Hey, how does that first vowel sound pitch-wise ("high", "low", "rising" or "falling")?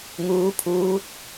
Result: rising